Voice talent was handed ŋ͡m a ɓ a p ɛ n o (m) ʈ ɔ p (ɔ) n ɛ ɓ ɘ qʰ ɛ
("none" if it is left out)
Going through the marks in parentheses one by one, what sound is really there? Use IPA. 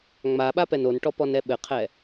n, ɔ

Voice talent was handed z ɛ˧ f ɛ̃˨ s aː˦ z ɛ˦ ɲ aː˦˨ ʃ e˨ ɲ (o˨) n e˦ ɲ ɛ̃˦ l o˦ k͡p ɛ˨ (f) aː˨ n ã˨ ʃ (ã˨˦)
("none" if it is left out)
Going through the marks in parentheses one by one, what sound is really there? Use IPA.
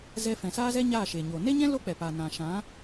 o˨, p, ã˨˦

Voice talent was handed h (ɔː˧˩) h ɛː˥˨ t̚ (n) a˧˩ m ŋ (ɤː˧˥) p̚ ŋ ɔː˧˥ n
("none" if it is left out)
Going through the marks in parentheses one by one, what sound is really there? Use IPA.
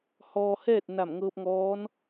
ɔː˧, n, ɤː˧

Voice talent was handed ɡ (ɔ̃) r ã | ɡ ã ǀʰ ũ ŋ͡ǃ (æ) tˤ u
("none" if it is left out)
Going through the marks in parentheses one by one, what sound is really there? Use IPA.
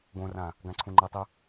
õ, ɐ

